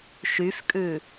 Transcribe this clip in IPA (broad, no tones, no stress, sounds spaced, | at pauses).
ʃ y f kʼ ʉ